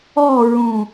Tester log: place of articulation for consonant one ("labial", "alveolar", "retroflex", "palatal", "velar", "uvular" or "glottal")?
alveolar